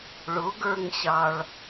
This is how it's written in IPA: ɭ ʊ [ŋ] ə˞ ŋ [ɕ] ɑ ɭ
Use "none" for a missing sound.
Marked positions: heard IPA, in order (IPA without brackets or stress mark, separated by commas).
ɡ, ɕ